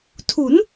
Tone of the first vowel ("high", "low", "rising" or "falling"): rising